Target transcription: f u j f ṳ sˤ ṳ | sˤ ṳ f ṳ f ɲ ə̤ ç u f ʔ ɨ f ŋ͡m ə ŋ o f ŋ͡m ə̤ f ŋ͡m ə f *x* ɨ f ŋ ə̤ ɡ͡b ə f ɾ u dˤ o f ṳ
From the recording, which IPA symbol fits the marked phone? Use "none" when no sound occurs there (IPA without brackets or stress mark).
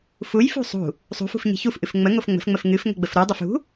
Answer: ŋ